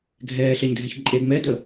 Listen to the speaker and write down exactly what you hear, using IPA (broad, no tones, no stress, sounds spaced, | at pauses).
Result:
ɡʱ ɛː ɬ ɛ ɲ dʱ ɛ ç ǃʼ e ŋ͡m ɛ d ə